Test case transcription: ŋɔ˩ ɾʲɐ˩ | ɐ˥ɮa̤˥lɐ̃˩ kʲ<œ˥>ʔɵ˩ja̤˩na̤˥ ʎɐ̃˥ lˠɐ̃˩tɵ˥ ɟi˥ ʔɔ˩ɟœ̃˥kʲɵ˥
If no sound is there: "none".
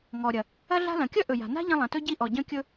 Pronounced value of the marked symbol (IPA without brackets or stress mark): œ˥